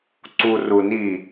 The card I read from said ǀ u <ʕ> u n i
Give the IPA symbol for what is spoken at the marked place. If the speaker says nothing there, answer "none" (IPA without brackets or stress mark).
r